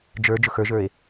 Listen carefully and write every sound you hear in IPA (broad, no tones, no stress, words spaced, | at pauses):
d͡ʒə˞ d͡ʒʊxə˞ʒə˞e̯